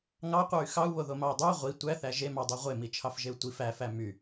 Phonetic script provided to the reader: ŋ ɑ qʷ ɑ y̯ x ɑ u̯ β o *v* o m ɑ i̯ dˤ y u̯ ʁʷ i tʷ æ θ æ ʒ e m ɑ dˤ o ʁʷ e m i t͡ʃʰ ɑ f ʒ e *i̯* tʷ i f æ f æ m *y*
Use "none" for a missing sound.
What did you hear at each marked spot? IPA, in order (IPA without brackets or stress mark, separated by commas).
ð, u̯, y